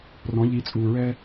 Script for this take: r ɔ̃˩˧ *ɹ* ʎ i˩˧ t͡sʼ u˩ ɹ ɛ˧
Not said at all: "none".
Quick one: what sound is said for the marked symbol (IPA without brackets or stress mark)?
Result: none